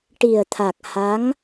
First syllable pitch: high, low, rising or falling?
low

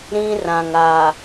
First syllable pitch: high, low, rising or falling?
high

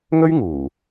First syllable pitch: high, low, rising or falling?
high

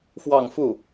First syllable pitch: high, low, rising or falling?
falling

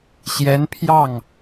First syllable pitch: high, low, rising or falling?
rising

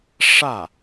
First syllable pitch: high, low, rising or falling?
falling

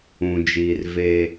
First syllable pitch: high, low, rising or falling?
low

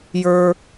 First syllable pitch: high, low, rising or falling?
low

